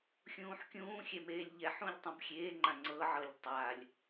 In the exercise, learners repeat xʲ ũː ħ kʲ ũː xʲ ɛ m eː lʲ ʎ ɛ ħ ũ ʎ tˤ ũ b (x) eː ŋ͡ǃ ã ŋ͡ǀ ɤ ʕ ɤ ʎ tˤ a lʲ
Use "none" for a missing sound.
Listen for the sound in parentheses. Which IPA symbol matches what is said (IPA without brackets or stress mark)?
xʲ